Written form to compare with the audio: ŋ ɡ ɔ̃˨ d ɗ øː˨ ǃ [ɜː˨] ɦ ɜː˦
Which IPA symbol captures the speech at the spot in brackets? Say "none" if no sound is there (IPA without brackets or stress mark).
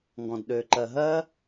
ɜ˨